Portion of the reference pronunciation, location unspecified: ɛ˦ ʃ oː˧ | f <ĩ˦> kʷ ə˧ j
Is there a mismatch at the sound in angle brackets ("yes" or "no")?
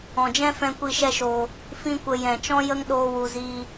no